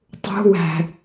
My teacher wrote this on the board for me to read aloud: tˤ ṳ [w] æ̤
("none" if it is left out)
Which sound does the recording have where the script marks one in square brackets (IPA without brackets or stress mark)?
w